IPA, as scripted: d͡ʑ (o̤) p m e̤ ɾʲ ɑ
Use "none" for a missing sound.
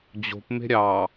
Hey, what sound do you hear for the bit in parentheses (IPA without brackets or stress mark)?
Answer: o̤